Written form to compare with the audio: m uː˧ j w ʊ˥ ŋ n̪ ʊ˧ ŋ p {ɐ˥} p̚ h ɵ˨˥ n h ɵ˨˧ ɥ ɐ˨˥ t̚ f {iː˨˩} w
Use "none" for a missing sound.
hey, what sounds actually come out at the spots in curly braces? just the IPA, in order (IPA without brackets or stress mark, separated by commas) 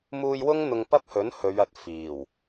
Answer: ɐ˥, iː˨˩